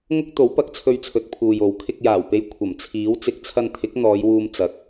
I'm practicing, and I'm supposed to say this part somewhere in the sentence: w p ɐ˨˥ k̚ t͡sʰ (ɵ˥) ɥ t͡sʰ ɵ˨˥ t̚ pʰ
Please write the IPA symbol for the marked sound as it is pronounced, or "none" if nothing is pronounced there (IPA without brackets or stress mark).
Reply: ɵ˧